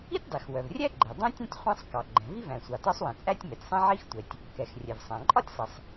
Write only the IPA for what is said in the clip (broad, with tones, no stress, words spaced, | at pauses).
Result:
i˥tʲdˤi˩xwœ˩vrʲæ˥ ɡ͡ǃɛ˩ dˤɛ̃˥tʲɛ̃˥tʲ χʷɛ̃˥sˤ kɑ˩ɡ͡ǃɛ̃˩ vi˥væ̃˩sʷɑ˩ tɒ˥sˤwɛ̃˩ t͡sʼæ˥tʲmɛ˩tʲsˤɛ̃˥ ʕi˥xtʷɛ˩tʲ | kɛ˩x rʲɛ˩vsˤæ̃˩ǃʼɒ˥tʲsˤi˩sˤ